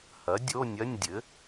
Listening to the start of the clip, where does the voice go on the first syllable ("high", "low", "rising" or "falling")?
rising